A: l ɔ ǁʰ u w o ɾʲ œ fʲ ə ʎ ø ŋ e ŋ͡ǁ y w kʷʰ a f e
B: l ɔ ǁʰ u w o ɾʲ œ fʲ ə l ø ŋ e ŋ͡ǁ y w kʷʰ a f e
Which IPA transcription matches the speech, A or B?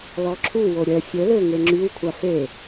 B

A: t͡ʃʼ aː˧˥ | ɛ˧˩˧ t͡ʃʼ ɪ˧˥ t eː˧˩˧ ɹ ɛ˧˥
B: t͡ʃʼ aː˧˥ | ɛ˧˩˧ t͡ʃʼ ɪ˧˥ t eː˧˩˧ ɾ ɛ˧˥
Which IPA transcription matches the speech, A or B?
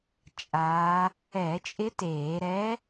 B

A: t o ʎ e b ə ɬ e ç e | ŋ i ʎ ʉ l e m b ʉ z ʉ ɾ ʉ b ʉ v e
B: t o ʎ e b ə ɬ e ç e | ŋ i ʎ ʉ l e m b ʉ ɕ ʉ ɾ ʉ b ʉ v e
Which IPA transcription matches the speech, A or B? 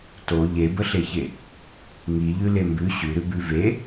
B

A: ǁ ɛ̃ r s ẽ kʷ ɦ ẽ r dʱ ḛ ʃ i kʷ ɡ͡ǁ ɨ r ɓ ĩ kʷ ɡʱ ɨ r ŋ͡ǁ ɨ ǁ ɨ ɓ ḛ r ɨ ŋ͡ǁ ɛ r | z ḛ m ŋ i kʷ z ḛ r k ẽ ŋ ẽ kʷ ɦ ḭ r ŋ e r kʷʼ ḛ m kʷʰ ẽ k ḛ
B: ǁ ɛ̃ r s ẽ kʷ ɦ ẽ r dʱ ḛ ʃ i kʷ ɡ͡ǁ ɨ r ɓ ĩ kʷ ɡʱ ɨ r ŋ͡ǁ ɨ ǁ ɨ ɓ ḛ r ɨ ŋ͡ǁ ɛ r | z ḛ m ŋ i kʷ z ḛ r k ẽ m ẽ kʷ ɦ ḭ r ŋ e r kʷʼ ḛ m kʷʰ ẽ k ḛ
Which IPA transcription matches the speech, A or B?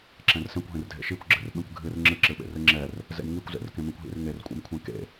B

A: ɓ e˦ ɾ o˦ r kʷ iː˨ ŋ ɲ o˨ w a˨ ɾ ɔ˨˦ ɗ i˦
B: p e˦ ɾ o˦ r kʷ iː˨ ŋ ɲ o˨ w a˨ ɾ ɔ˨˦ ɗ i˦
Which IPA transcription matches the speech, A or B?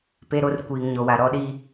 B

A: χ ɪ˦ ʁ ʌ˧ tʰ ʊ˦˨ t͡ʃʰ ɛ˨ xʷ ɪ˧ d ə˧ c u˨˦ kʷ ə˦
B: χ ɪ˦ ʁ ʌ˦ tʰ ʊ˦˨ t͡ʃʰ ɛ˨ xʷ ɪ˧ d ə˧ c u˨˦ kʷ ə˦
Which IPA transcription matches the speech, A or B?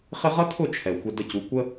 B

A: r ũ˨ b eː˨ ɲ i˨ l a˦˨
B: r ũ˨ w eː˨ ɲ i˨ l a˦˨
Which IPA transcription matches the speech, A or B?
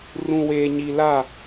B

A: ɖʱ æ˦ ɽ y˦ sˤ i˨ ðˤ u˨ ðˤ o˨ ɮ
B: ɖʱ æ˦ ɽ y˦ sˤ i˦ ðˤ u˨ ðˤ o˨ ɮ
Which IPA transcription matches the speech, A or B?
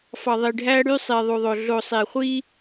A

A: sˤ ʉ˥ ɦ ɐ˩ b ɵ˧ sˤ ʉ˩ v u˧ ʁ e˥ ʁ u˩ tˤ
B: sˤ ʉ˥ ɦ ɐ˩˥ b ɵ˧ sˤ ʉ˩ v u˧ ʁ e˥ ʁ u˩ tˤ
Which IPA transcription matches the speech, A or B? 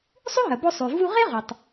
A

